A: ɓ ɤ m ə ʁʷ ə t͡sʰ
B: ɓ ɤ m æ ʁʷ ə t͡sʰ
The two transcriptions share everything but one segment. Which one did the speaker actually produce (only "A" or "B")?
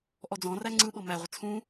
B